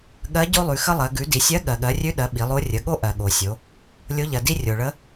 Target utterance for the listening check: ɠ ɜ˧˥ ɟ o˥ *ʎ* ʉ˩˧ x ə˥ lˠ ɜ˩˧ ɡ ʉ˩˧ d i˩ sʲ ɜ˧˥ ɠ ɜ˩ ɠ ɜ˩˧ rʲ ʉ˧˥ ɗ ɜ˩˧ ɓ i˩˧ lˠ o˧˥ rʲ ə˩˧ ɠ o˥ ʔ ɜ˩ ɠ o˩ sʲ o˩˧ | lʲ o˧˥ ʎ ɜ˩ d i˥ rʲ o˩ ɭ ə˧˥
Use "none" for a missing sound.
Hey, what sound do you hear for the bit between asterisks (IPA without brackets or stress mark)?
lˠ